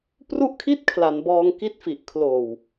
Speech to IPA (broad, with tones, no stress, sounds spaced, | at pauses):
p r u˥˩ ʔ kʰ i˥˩ t̚ kʰ l a˩˦ n b ɔː˧ ŋ k i˦˥ t̚ f i˨˩ ʔ kʰ l oː˨˩ w